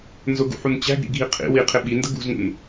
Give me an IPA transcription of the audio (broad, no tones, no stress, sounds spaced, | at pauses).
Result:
n z ʊ ɡ ṵ ħ u n t͡ɕ æ̤ ɡ ɾ ḭ ɡʱ i qʰ ḭ w i qʰ ɪ ɓ i n d ə ɡ ṳ z ŋ ṵ n